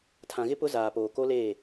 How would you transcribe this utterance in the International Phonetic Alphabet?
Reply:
tʰ ã˨ ɣ ɪ˦ p ʊ˦ z aː˨ p oː˨ k o˦ l eː˦˨

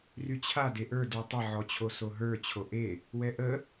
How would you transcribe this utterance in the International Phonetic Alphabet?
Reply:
r y t͡ɕʰ a d e ʔ ə˞ d y tˤ ə ʕ ɔ t͡ɕʰ o s o ɦ ə˞ t͡ɕʰ o ʔ e | w ɛ ʔ ə

